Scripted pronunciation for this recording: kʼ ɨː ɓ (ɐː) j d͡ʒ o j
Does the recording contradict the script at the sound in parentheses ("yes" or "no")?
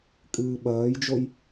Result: no